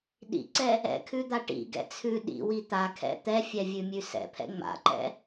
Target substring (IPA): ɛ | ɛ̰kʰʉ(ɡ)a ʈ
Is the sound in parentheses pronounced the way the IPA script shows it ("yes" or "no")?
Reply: no